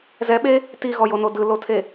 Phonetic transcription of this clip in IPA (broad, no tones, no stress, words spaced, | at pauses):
zɛɓe | tiɣɔjono dɯlotʰe